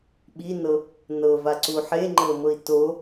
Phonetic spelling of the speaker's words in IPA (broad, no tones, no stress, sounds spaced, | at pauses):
ɓ i n ɤ | n ɤ v a ǀ u ħ e ŋ͡ǃ ɤ m ɤ i̯ t o